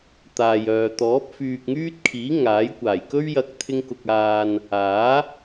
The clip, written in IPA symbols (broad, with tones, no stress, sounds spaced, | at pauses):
t̪ aː˨ j œː˨ t̪ ɔː˨˥ p̚ f yː˨ k̚ ŋ yː˥ t̚ kʰ iː˨˥ ŋ aː˨˥ j kʷ aː˨˩ j k ɵ˥ ɥ j ɐ˧ k̚ t̪ʰ ɪ˥ ŋ k ʊ˧ k̚ aː˨ n | aː˨˥